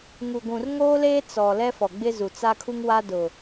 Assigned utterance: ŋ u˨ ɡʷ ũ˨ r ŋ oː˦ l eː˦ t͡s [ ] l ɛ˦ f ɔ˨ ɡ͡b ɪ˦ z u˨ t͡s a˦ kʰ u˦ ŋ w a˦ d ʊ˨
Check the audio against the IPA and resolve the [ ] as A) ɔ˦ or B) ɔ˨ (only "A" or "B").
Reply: B